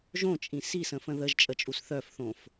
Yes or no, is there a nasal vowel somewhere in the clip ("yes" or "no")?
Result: yes